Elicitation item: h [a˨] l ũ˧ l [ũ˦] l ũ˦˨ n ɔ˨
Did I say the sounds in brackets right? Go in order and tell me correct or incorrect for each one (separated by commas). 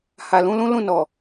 correct, correct